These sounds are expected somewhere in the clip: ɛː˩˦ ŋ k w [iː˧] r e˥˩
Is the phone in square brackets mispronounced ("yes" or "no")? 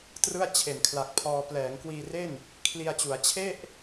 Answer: no